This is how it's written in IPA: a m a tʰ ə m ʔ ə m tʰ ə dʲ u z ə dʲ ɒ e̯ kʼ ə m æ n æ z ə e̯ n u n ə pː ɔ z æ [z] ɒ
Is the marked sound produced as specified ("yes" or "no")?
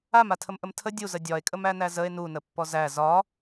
yes